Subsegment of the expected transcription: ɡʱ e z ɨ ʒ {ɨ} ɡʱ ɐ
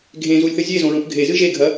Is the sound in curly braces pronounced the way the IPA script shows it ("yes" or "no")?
no